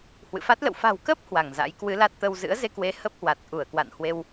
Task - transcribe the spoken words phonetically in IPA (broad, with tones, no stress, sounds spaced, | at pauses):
h w ɨ̰˧˨ f a˦˥ t̚ l ə̰˧˨ w f a̤˨˩ w k ə˦˥ p̚ h w a˧˩ ŋ z a̰˧˥ j k w ɨ˨˦ l a˦˥ t̚ t̪ ə˧ w z ɨ̰˧˥ ə̯ z e˧ k w e˨˦ h ə˦˥ p̚ h w a˨˩ t̚ ʔ u˧˩ ə̯ k w a̰˧˨ n h w e˧ w